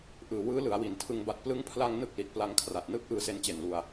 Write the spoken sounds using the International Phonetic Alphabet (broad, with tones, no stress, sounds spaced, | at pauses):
ʔ ɯː˩˦ w ɯː˦˥ l ɯ˩˦ a̯ w i˩˦ n tʰ ɯ˧ ŋ b a˨˩ t̚ p l ɯ˦˥ ŋ pʰ l a˧ ŋ n ɯ˥˩ k̚ l i˨˩ t̚ p l a˧ ŋ kʰ r a˨˩ t̚ n ɯː˥˩ k̚ ʔ ɯː˧ s e˦˥ n t͡ɕ e˨˩ n l u˧ a̯